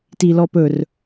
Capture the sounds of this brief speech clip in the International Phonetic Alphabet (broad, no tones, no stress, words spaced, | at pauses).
tilɔpɵr